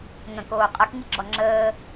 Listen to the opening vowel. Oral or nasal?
nasal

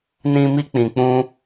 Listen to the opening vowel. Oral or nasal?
nasal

